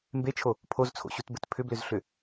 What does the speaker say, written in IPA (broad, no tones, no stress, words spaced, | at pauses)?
mbet͡ʃʰo | pʰozt͡sʰo̰ɕutbɘt pʰʏblʏzɬʏ